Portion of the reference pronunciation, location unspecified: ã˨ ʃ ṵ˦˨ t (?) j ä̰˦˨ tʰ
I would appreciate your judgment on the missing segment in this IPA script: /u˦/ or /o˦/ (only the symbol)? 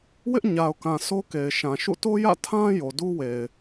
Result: o˦